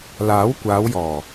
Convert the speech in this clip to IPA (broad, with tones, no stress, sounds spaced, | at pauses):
l aː˨˥ w kʷ aː˨˧ w j ɔː˨˩